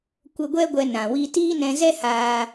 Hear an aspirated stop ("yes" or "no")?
no